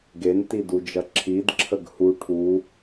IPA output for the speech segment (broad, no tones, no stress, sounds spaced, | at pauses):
ɡ e n t i d u d͡ʒ ɐ ǁʰ i d ǁʰ ə ɡ h u ʈʰ u